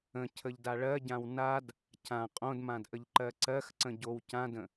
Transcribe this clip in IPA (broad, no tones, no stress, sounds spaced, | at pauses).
ə̃ cʰ ə ʎ d a ɭ ɜ ɟ ã w n a d | cʰ ã qʼ õ d m ã d ʔ ə ʎ ǃ ɜ ǀ ɜ x ǀ ə̃ ɟ o w c ã d ə̃